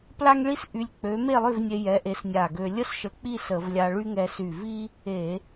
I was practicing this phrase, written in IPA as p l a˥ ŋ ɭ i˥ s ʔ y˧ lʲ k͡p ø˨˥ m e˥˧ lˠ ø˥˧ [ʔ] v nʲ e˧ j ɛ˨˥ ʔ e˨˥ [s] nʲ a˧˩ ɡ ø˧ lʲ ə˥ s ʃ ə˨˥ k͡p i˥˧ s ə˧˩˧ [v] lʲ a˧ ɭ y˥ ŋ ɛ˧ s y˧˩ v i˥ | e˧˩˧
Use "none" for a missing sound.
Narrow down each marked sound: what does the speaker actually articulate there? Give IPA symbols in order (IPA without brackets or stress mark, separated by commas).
none, s, v